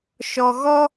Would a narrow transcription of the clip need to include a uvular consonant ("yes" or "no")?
no